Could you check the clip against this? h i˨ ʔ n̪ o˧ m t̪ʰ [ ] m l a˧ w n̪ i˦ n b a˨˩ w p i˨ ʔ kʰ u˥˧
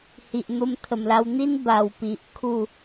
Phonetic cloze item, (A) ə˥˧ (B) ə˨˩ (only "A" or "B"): B